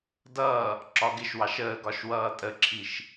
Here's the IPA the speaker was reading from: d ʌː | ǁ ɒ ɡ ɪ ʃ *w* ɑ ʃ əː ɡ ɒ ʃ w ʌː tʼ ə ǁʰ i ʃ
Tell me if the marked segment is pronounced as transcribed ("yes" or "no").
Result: yes